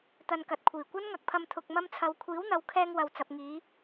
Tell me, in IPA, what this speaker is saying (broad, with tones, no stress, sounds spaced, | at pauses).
t̪ ɐ˧ n k ɐ˨ t̚ kʷʰ iː˨˩ kʷ ɐ˥ n ŋ ɐ˨˥ k̚ pʰ ɐ˧ m t̪ʰ ʊ˨ k̚ m ɐ˧ m t͡sʰ ɐ˨ w kʷʰ iː˨˥ w n̪ ɐ˨ w kʰ ɛː˧ ŋ w ɐ˨ w t͡s ɐ˨ p̚ ŋ iː˨˧